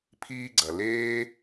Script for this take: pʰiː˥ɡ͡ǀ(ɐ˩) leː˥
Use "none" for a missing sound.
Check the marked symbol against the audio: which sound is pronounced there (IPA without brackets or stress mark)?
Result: ɐ˩